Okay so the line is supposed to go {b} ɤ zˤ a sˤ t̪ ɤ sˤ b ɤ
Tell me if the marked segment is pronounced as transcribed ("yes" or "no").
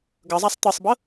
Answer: no